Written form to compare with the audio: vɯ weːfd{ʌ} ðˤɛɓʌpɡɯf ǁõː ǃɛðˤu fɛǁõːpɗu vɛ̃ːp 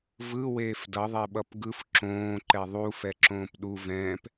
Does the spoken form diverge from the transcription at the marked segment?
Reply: no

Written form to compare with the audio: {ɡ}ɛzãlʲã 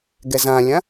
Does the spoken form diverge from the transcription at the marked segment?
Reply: no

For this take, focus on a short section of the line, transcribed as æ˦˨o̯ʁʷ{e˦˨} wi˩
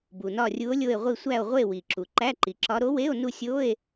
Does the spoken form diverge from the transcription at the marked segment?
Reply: no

